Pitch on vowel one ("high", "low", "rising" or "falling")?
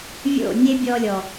falling